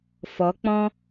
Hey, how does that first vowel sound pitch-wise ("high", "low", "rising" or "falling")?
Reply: rising